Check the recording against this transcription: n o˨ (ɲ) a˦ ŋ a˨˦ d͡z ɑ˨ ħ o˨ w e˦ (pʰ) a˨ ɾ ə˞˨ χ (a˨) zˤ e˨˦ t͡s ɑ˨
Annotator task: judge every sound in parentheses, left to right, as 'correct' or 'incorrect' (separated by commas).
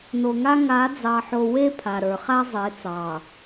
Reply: incorrect, correct, incorrect